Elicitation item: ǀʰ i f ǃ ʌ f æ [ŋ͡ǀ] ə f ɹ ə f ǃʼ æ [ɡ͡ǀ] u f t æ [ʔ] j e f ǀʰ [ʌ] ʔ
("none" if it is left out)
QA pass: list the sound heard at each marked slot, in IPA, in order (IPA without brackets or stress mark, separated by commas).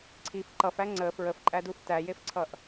ŋ͡ǀ, d, none, ʌ